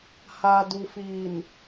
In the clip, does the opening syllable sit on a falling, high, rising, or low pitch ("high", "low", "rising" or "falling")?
low